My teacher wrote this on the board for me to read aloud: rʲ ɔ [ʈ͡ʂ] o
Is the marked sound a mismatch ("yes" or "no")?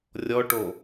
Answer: yes